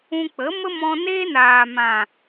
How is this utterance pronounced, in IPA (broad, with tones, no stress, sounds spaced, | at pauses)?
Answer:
ũ˧ k͡p ə˨˦ m ə˦ m ɔ̃˧ n eː˦ n aː˨ m ã˨